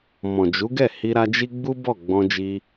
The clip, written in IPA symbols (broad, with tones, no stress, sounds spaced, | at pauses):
m ɔ̃˨ d͡ʒ u˨˦ ɡ ɛ˦˨ h i˧ ɾ a˧ d͡ʒ i˦ ɡ͡b u˦ b ɔ˦˨ ɡ͡b ɔ̃˧ d͡ʒ i˧